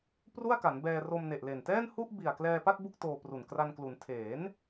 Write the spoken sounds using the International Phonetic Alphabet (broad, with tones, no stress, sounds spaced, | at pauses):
p r u˥˩ a̯ k a˩˦ n b ɛː˧ r o˧ m n e˨˩ ʔ l e˨˩ n t ɛː˥˩ n h u˥˩ ʔ b i˨˩ a̯ k l ɛː˧ p a˥˩ t̚ b u˥˩ k̚ t oː˧ p r u˨˩ n k r a˧ n k l u˩˦ n tʰ eː˩˦ n